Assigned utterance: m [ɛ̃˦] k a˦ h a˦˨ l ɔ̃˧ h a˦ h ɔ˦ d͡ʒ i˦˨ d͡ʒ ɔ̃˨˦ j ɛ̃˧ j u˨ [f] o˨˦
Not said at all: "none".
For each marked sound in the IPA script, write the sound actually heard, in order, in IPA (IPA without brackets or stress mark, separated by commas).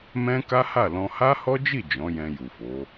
ɛ̃˦, f